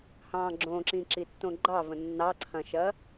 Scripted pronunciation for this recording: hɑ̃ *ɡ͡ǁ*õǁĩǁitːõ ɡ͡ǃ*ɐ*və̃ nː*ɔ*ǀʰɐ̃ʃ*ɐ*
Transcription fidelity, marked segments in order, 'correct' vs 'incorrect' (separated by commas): correct, incorrect, incorrect, correct